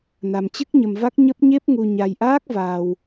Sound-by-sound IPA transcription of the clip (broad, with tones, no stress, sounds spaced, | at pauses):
n a˧ m t͡ɕ ɨ˦˥ k̚ ɲ ə˧ m v a˦˥ k̚ ɲ ə˦˥ p̚ ɲ e˦˥ p̚ ŋ u˧ ɲ a˧ j ʔ aː˦˥ k̚ v aː˧ w